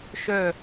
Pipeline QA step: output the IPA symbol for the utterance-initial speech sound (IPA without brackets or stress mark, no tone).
ʃ